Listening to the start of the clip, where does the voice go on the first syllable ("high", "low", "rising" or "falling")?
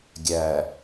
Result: low